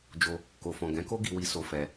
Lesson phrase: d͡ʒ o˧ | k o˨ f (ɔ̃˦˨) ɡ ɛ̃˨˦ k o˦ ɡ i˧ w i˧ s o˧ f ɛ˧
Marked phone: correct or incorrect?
incorrect: ɔ̃˨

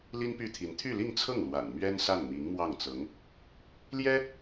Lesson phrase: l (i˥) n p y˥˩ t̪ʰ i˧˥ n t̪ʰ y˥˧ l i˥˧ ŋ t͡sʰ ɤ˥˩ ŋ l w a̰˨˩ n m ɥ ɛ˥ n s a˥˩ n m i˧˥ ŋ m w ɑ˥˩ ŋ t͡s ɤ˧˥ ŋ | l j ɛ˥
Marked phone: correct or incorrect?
correct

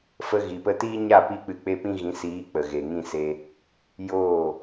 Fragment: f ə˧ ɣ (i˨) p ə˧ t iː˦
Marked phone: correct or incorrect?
correct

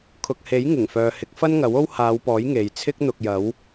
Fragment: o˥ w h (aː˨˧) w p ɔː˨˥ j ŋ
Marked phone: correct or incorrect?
correct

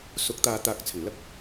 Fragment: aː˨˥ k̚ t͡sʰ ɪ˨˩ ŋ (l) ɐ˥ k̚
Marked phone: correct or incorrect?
correct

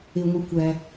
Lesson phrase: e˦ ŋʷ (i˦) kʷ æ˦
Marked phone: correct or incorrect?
correct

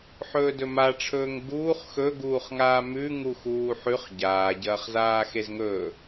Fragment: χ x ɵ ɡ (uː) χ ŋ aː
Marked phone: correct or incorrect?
correct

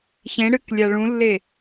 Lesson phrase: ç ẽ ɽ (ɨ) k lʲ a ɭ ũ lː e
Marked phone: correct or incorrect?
correct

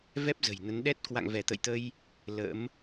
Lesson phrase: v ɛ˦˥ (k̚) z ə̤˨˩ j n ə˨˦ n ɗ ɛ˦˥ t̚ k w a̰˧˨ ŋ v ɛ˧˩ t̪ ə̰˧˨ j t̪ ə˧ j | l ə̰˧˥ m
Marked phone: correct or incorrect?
incorrect: p̚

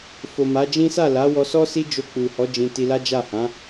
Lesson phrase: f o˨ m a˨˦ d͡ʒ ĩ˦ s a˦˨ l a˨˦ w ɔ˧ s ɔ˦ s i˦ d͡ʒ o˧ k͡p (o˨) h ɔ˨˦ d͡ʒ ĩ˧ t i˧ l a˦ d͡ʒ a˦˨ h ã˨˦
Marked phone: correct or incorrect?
incorrect: u˨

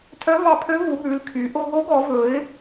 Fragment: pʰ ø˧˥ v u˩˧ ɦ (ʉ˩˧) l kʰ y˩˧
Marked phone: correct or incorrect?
correct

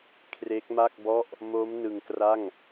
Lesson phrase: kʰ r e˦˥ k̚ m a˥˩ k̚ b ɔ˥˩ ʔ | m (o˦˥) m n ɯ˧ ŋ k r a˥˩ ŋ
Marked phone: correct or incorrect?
correct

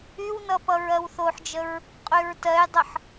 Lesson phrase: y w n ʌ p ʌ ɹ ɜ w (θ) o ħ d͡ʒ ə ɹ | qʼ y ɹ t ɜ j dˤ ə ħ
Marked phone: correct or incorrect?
correct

